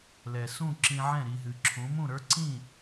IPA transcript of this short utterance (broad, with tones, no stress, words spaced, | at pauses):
lɛ˩sũ˥˩ ǁĩ˧ʕɛ̃˥˩ ɾi˧ɦɨ˩ǁʰũ˩˥ mũ˥˩ɾə˞˥ǀĩ˥˩